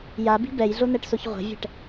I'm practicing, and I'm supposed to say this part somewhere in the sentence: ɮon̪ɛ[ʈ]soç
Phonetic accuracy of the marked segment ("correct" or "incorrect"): correct